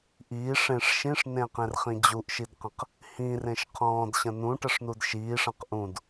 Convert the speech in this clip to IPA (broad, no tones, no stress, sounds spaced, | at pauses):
ʔ iː ʂ ẽ ʂ ʃ ĩ ʂ n ẽ q ẽ r χ ĩ d͡ʑ u ʔ ʃ i d q ə̃ q | h ĩ r ẽ ʃ qʰ ɔ̃ː d ɕ ə̃ n ũ ʈ ə ʂ n u d ʃ iː ʂ ə̃ q ʔ ũ d